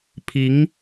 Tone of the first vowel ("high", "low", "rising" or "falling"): rising